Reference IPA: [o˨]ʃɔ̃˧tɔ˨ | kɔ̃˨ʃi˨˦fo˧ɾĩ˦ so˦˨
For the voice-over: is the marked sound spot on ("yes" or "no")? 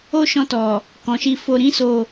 no